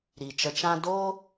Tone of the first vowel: low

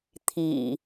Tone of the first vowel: low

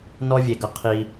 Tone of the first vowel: high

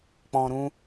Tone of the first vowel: low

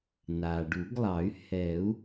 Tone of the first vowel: low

